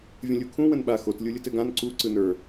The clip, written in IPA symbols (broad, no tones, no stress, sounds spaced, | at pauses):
vʲ ə̃ lʲ u kʰ ũ w ə̃ n ɓ a x o t lʲ u lʲ ɯ t ɘ ɡ ã n ǀ u ǀ ɯ n ə˞